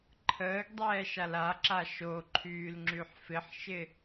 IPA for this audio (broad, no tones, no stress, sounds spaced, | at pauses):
ǃʰ əː ɡ dˤ ɛː ʃ a l a ǁ a ʃ o ǃʰ yː l ŋ͡ǁ y ħ f ɪ ħ ʃ ɪ